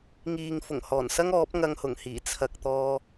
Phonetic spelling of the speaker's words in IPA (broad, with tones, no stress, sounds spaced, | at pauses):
ŋ iː˨ ŋ f ʊ˨˩ ŋ h ɔː˨˩ n s ɐ˥ ŋ ɔː˨˥ p̚ ŋ ɐ˧ ŋ h ʊ˨˩ ŋ h iː˨˩ t͡sʰ ɐ˨ k̚ t̪ ɔː˧